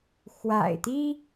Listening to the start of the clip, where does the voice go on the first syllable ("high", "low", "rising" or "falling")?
low